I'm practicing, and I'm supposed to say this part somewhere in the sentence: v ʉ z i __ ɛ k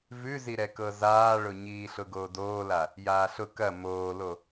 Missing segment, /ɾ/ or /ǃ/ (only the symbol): ɾ